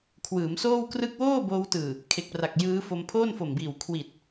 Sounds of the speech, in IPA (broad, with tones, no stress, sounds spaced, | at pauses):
kʰ w ɯː˩˦ m s oː˥˩ w k r ɯ˥˩ k̚ w oː˥˩ b oː˧ w t ɯː˨˩ | kʰ e˨˩ k̚ p r a˨˩ k̚ j ɯː˦˥ f o˧ m pʰ oː˥˩ n f o˨˩ m b iː˨˩ w kʰ w i˨˩ t̚